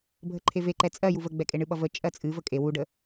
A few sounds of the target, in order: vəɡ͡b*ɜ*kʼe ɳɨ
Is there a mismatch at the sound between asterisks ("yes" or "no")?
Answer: yes